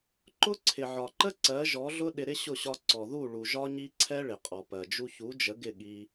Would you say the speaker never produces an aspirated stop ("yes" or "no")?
no